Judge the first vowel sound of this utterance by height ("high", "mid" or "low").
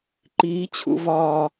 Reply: high